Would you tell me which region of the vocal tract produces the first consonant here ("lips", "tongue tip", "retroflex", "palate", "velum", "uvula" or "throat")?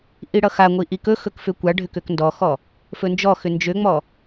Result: throat